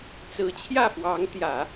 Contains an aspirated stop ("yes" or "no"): yes